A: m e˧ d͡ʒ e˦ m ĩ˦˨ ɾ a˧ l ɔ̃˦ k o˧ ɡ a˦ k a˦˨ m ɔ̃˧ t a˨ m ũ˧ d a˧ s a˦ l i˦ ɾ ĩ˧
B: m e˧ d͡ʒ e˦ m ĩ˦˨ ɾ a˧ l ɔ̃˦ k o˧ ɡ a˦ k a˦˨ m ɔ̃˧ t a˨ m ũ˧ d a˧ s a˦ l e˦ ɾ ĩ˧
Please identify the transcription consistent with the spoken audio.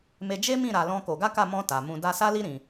A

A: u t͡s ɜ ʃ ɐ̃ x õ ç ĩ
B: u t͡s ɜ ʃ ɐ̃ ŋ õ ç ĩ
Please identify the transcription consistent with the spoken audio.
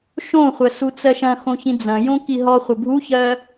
A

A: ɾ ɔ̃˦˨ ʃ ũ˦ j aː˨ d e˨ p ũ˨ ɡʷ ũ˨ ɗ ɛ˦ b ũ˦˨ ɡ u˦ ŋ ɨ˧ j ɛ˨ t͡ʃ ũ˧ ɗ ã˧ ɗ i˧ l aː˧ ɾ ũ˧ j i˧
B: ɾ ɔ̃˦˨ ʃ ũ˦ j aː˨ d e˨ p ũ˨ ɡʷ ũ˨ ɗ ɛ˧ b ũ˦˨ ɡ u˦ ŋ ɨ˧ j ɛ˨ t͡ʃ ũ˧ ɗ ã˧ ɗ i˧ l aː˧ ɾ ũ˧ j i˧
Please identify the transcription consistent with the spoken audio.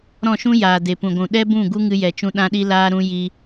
A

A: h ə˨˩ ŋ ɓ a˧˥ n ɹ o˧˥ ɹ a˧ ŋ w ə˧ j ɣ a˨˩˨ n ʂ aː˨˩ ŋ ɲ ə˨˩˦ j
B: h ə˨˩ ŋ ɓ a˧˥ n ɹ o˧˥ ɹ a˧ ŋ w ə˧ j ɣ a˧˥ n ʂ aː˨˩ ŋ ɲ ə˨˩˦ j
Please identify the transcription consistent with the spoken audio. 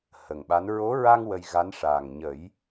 B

